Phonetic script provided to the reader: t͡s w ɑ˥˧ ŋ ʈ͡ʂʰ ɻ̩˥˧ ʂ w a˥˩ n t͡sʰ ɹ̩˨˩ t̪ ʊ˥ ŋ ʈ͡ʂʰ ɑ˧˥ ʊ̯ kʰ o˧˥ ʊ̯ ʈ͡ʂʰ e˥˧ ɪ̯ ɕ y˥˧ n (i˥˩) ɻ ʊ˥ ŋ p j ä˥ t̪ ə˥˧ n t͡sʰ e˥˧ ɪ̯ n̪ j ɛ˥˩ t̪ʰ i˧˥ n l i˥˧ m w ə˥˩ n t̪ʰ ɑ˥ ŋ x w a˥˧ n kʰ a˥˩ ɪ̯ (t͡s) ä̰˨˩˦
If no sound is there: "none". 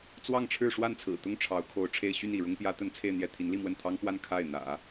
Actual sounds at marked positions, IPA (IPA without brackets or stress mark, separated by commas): i˥˩, n̪